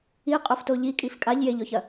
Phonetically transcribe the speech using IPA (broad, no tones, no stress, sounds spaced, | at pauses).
i qʼ o f t o ʎ i kʼ i f kʼ a ʎ j e ʎ ɔ ç ɐ